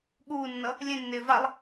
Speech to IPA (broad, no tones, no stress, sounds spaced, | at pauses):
ɠ uː nː ʌ | lʲ ẽ nː ɪː v a lˠ